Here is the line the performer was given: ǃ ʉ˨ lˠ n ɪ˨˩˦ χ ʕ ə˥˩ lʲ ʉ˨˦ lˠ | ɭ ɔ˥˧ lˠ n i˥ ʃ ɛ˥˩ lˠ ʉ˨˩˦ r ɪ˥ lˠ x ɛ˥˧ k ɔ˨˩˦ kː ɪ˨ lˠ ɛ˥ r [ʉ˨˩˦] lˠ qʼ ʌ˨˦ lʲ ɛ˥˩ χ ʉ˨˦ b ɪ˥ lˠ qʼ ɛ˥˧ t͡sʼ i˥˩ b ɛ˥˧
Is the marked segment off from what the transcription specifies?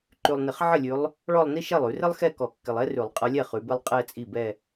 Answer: no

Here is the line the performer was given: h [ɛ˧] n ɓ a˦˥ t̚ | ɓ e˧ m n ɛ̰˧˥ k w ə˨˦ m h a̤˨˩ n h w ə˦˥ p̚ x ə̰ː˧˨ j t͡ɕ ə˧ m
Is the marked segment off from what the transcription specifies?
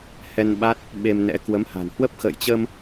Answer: no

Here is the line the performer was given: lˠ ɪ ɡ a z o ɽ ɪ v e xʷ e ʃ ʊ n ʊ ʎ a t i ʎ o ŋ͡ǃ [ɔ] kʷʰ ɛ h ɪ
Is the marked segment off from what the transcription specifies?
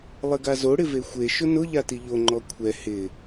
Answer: no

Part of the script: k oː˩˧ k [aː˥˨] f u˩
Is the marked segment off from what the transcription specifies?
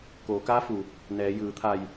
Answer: yes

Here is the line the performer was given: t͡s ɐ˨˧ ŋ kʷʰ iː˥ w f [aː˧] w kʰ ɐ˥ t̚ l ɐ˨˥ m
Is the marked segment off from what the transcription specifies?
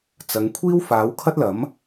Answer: yes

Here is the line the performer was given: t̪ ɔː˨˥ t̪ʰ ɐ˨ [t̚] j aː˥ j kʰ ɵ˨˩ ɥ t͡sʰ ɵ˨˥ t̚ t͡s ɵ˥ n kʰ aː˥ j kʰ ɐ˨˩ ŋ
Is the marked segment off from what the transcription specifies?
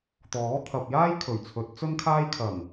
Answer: yes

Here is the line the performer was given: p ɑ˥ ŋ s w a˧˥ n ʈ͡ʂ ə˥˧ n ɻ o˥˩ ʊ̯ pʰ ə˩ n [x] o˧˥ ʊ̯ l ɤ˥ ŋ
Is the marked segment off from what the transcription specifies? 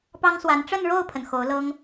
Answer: no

